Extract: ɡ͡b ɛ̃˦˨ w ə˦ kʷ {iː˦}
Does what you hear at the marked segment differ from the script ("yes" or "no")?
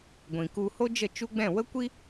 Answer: yes